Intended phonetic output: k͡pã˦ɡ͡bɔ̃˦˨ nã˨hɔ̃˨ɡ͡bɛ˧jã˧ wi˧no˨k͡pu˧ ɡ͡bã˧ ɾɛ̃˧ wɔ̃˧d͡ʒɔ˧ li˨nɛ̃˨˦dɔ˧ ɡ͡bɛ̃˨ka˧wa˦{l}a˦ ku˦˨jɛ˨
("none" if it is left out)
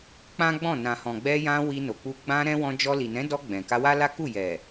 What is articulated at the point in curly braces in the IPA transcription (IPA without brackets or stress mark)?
l